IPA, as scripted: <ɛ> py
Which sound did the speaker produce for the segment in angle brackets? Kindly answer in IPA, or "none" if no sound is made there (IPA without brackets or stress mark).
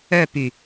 œ